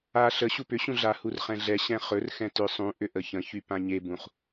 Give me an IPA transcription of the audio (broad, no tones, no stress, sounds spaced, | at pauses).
a ɬ ə ɕ u p ʏ ɕ ũ ɮ a h u r χ ɛ̃ ɮ ɛ ɕ ɛ̃ χ ɵ r x ɛ̃ t ʏ sˤ ũ ʔ ʏ ʔ ə ç ə̃ ç y p ã ɲ e b ũ χ